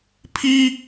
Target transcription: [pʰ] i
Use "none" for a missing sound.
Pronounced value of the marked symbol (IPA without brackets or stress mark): pʰ